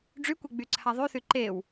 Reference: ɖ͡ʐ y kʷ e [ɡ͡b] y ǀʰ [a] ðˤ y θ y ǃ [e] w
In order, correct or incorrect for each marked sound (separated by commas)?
correct, correct, correct